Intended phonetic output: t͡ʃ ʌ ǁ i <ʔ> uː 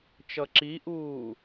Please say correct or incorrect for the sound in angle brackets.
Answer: correct